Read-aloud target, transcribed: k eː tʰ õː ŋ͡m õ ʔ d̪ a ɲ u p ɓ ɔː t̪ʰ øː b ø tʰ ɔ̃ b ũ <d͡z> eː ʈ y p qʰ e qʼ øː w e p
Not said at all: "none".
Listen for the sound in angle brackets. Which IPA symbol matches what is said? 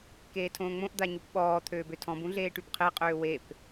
ɮ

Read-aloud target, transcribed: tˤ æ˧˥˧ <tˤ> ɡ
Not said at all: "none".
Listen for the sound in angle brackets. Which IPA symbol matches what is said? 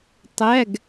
none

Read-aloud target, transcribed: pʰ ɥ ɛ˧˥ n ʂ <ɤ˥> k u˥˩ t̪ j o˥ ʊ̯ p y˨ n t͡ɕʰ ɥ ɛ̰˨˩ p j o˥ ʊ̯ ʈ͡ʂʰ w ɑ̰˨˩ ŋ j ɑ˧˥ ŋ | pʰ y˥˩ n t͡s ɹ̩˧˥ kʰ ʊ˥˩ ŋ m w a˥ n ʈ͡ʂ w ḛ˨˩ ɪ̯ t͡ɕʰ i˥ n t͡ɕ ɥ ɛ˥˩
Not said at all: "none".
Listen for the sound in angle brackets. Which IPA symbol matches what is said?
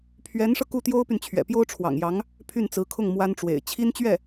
ɤ˧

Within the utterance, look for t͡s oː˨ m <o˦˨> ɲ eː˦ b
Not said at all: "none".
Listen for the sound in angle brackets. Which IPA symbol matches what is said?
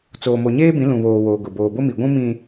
o˨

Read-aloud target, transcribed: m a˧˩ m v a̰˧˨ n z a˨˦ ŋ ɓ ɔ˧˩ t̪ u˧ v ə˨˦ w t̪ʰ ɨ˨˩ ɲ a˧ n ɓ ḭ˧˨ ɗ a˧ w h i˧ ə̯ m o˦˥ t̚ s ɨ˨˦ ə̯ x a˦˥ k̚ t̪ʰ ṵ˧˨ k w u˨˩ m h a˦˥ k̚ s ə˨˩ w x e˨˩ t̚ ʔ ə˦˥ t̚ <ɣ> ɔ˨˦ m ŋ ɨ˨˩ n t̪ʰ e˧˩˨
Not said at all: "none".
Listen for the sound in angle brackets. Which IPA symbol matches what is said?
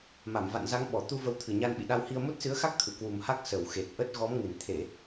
ɣ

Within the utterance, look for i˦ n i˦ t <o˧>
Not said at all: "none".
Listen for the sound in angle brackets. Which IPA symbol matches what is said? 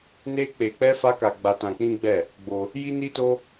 o˦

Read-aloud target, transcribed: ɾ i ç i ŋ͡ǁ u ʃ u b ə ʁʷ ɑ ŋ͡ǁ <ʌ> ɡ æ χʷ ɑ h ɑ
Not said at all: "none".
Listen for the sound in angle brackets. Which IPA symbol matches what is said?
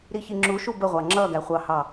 ʌ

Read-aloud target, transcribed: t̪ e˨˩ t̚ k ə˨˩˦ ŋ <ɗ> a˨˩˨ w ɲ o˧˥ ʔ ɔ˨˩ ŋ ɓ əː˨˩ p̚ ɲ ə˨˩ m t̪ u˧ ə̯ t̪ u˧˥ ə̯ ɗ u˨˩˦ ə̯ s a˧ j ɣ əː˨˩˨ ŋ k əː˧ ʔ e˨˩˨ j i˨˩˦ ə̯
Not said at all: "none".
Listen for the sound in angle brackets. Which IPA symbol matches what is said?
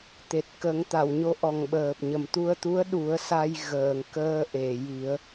t̪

